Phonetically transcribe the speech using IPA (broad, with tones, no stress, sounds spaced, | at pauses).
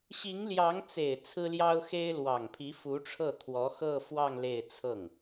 ɕ i˧˥ ŋ l j ɑ˧˥ ŋ t͡s e˨˩ ɪ̯ t͡sʰ ɹ̩˥ l j ɑ˥ ʊ̯ x e˥ ɪ̯ l w ɑ˨˩ ŋ pʰ i˧˥ f u˧˥ ʈ͡ʂʰ ɤ˥˩ t̪ʰ w ɔ˧˥ x ɤ˥˧ f w ɑ˥˧ ŋ l e˥˧ ɪ̯ t͡sʰ ɤ˥˩ ŋ